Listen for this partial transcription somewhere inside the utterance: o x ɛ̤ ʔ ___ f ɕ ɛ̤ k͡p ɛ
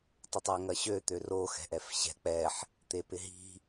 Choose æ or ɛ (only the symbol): ɛ